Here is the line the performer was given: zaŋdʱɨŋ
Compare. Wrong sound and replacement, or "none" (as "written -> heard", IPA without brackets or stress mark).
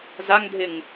ɨ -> ɪ